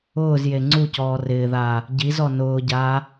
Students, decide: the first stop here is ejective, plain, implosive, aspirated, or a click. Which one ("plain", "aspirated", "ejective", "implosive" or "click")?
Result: click